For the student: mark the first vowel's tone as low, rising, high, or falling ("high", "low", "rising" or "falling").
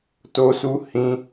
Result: high